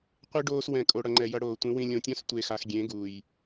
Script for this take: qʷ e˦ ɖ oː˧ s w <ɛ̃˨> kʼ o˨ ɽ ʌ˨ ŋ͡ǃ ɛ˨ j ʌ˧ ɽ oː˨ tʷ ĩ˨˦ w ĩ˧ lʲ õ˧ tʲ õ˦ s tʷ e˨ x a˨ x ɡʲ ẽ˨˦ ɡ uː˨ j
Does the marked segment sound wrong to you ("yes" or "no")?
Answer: no